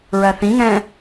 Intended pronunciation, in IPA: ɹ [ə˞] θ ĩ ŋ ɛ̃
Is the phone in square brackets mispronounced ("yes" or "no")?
yes